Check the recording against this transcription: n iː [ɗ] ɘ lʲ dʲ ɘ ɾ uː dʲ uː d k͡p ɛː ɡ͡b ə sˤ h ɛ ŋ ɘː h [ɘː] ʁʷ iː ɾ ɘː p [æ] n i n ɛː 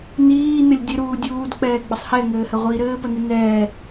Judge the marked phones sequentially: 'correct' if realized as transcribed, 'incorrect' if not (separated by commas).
incorrect, incorrect, incorrect